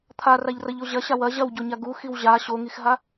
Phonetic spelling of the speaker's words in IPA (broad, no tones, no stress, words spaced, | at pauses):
t̪ʰaraʎrɐʎo ʑɐɕa wɐ ʑɐwɟoɲa ɡuxiw ʑa ɕoŋixɦa